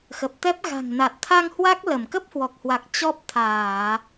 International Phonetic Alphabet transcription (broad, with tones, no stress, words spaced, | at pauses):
xə˨˩p̚t̪ɛ˦˥p̚ ɣa̤˨˩ŋna˨˩t̚t̪ʰa˧ŋ hwa˦˥k̚lə˧˩m kə˦˥p̚hwɔ˨˩k̚hwa˨˩k̚ t͡ɕɔ˦˥p̚ t̪ʰaː˧˩˨